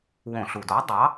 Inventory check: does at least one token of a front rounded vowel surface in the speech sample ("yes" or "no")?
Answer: no